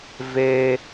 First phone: v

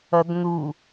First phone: ʌ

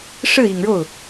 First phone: ʂ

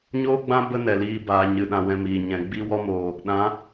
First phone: ɲ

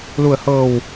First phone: l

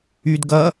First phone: y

